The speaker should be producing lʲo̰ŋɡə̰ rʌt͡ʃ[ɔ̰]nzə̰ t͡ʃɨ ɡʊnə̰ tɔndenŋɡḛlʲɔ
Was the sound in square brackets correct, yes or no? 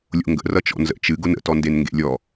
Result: yes